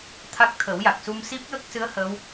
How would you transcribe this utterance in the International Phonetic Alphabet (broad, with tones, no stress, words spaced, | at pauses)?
t̪ʰa˦˥k̚t̪ʰə˨˩˦wja˨˩k̚ su˧msi˦˥p̚jə˦˥k̚sɨ˧˥ə̯ hə˧˥w